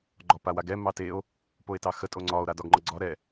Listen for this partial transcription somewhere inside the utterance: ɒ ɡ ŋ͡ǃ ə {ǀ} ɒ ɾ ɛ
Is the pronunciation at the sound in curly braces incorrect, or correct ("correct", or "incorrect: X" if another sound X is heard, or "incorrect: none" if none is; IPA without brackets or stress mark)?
incorrect: ɡ͡ǀ